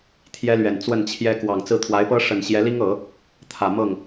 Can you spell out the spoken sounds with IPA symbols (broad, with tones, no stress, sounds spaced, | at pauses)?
t̪ʰ j ɛ˥ l ɥ ɛ˨˩ n t͡s w ə˥˩ n t͡ɕʰ j ɛ˥ k w ɑ˨˩ ŋ t͡s ɹ̩˥˩ t̪ʰ w a˧˥ ɪ̯ p ɤ˥ ʂ ə˨˩ n ɕ j ɛ˧˥ l i˥ ŋ ɤ˨˩˦ | t̪ʰ ä˨˩ m ɤ˥˩ ŋ